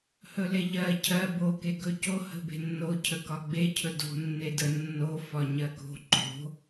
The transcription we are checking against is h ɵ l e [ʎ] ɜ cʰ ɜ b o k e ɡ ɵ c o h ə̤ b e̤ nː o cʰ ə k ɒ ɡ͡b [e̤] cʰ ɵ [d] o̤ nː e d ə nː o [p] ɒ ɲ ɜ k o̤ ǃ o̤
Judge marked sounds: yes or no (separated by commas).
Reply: yes, no, yes, no